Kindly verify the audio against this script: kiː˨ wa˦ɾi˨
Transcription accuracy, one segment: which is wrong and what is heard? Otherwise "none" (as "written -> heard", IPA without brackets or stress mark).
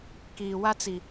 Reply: ɾ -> t͡s